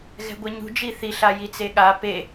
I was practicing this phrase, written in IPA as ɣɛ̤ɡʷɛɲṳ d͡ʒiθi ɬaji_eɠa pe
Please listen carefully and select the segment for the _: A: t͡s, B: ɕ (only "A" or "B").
A